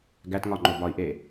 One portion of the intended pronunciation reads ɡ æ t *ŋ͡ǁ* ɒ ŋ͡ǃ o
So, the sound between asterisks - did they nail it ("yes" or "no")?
no